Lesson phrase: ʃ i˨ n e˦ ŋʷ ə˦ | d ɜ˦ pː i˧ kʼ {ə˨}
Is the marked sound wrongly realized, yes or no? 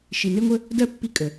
no